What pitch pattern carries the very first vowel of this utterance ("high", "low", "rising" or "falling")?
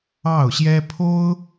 falling